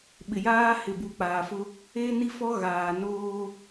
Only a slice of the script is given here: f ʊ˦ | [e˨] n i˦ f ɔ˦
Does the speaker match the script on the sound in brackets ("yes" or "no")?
no